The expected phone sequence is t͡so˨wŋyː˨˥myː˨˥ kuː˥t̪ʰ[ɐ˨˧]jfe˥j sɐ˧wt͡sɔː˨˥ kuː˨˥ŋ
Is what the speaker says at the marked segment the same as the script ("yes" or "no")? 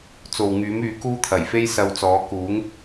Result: no